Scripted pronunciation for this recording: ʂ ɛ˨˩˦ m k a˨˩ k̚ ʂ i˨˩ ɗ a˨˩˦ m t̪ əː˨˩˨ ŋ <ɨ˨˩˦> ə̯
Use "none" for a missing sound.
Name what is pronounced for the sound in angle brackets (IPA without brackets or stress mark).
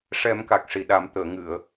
ɨ˨˩˨